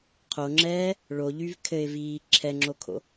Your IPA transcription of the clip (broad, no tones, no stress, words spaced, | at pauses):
qʰoŋ͡ǁɛː | ɭoʎyv kʰɘɪ̯viː ǁʰɛŋ͡ǁokʰo̰